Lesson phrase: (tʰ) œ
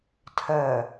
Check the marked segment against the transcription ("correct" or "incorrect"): correct